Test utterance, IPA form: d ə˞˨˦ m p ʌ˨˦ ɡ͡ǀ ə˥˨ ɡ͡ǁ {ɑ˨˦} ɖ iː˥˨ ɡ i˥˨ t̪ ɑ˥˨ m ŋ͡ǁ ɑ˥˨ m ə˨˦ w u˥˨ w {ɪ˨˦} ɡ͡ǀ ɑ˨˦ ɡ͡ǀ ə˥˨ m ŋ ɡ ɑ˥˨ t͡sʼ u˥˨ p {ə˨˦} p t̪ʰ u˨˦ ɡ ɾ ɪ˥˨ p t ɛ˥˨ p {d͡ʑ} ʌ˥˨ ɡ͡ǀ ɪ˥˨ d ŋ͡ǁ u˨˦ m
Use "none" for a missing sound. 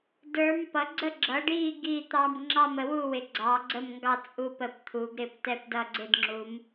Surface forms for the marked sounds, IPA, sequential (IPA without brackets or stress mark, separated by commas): ʌ˨˦, ɪ˨˦, ə˨˦, d